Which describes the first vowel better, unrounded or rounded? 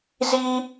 unrounded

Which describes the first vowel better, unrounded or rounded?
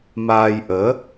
unrounded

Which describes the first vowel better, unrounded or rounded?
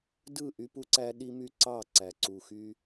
unrounded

